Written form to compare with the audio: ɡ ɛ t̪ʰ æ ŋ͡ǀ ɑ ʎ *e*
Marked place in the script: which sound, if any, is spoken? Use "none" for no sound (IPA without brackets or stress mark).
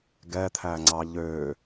ø